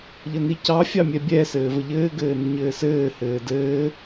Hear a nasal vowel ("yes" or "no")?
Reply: no